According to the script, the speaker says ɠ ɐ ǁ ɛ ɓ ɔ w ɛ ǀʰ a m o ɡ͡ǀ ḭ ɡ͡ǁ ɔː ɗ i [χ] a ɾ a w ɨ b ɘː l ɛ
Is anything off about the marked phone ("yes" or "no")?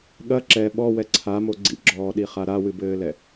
no